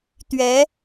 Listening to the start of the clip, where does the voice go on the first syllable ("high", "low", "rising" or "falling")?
rising